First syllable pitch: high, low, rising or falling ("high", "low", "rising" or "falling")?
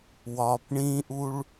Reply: low